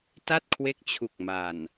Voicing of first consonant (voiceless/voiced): voiceless